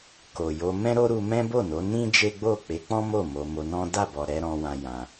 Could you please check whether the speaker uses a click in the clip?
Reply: no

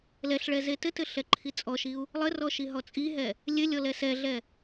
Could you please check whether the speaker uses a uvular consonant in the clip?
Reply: no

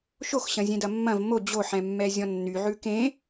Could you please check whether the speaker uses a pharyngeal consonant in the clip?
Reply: yes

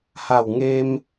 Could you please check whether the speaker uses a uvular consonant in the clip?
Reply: no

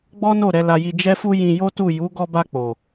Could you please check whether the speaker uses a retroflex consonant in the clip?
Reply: no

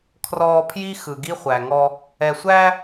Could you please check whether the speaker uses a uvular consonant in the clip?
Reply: yes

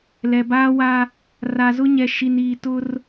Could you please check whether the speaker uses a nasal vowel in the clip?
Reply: no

